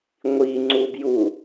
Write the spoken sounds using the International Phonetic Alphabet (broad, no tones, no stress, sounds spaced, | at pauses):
ŋʷ i ŋ͡ǀ u b j u